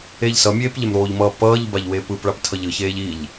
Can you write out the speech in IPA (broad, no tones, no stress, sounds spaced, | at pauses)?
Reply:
e ʎ s ʌ mʲ eː p ʎ ɛ m ɾ oː ʎ m ʌː p ʌː ʎ b a ʎ w eː p ɯ p ɭ a p tʰ ʌ ʎ ɯ ç eː ʎ i ʎ